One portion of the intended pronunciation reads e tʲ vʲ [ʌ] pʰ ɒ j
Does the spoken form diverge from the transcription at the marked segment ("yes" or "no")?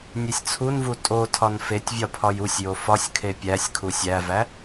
yes